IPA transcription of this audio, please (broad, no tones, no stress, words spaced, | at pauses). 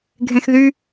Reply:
ɡʱẽxðy